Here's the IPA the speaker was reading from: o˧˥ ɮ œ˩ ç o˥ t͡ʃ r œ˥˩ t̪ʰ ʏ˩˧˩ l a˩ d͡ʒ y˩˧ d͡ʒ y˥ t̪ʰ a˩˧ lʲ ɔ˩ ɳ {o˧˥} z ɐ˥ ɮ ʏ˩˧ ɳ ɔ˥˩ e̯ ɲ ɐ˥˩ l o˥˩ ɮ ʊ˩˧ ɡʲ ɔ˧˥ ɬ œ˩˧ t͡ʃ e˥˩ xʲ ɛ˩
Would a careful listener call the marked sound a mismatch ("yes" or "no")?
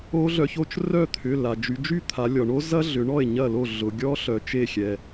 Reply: yes